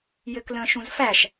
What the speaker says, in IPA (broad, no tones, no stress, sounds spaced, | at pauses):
j ɘ k l ə̃ː ʃ ũ z f æ ʃ